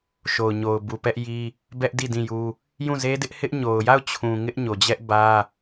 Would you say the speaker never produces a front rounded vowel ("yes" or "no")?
yes